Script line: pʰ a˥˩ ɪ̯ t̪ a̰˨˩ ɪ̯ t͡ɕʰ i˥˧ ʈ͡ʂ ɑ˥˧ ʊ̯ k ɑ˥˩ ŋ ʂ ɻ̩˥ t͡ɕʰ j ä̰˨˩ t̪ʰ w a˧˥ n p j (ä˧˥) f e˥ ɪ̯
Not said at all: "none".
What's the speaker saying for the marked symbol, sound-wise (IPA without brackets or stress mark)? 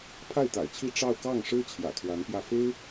ä˥˩